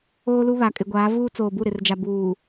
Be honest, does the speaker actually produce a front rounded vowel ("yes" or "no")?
no